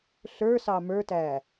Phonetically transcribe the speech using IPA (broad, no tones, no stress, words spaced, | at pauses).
ɬə˞sɑ mə˞tæ